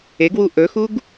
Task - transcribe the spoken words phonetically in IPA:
e ɡ w u ʔ ɵ x u ɡ

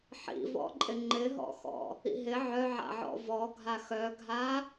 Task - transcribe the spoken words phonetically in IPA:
ħ ḭ v ɔ̰ ǃʼ ɪ ŋ͡ǃ ɪ ɦ ɔ̰ x ɔ̰ | ḭ ɦ ɪ ʕ œ ʕ a̰ ʕ ɔ̰ v ɔ ɡʱ a x œ ɡʱ a

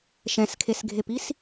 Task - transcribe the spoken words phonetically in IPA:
ʃ ɛ̃ s kʰ e s ɡʱ e p i s

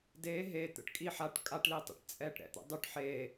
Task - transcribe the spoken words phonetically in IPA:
d e ɦ e t̪ ə̰ ʈ kʼ i ħ a ʈ kʼ a ʈ l i tˤ ḭ ʈ t͡sʼ ɛ ʈ ɾ ɛ̰ t̪ ə̰ dˤ y ʈ ħ eː

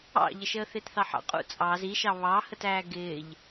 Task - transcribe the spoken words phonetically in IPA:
ɑ̰ ʎ ə ʃ əː θ ɪː t θ ɑ ħ ɑ̰ qʼ ṵ t͡sʼ ɑ z i ʃ ɑ β ɑ h ə t æː ɡ ɪː ʎ

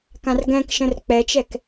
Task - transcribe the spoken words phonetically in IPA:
k ã r ɡ ɛ̃ k ʃ ə̃ r k͡p ɛ t͡ʃ ɛ k

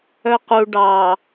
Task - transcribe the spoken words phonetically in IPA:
œ q u ɖ ɑ

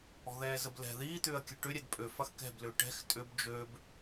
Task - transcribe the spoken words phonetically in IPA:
ɔ̤ ð ɛː z ə b l ɛ̤ ð iː t̪ ʏː ɐ̯ kʲ ə ʈ ʏ ɾʲ ɛ d pʼ ø f ɐ x k ɛ̤ b l ʏː ʈ ɛ̤ x tʼ ʏ b d͡ʒ ø b

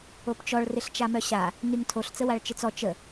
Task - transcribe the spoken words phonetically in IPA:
o p t͡ʃ ɔ ɭ r ɪ ɬ t͡ʃ a m œ ɕ a | n y ŋ tʰ o ɬ t͡s ə w a ɭ t͡ʃ ɪ t͡s ɔ t͡ʃ ə

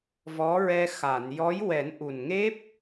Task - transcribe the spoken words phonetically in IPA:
v ɔ˧˥ ɹ ɛ˧ x a˨˩˨ n j ɔ˧˥ j w ɛ˨˩˦ n ʔ u˨˩ n ŋ e˦˥ p̚

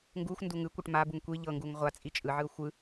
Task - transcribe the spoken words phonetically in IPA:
ŋ ɡ u xʷ n d u ŋ ɯ kʷ ɤ ʈ m a b u ŋ kʷ i ʎ ɤ ŋ ɡ u ŋ ʁʷ a t͡sʼ i t͡ʃʼ ɯ ʕ ɯ ʊ̯ xʷ ɯ

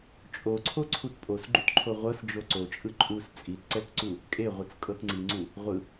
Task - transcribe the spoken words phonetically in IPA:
t͡ʃʼ o ǀʰ o ǀʰ u t pʼ o s ɡ͡ǃ u t ǃʰ o ʁʷ ɤ s d͡ʒ o ǀ o t͡ʃʼ ɯ ǃʼ u s t͡sʼ i t ǀ ɛ t ǀ u | kʼ e ʁʷ ɯ t͡s kʼ ɤ t ŋ͡ǀ i ŋ͡ǀ u | ʁʷ ɯ

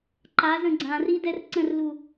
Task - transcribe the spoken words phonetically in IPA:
ǃ a z ə̃ ɡ͡ǀ ã r i d ɛ r ǀ ə̃ r l u

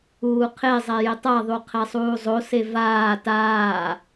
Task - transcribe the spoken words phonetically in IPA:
uː qʰ e zˤ ɛ j ɪ tˤ a ðˤ u qʰ ɛ sˤ uː zˤ o s e v aː t aː

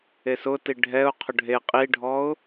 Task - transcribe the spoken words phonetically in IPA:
e s ʊ t i ɖʱ ɛ ʊ̯ qʰ ʊ ɖʱ e qʼ i ɖʱ ɔ ʊ̯

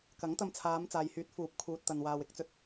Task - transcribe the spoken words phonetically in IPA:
k ɐ˨˥ ŋ t̪ ɐ˧ m t͡sʰ aː˨˧ m t͡s aː˨ j h yː˨˥ t̚ f uː˨˥ p̚ kʰ uː˨ t̚ t̪ ɐ˨ n w aː˨ w ɪ˧ k̚ t͡s ɵ˧ t̚

